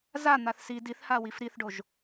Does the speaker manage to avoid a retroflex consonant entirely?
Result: no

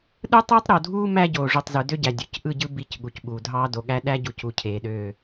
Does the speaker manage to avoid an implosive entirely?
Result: no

